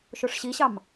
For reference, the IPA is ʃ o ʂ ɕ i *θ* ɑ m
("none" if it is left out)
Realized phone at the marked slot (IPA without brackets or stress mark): ɕ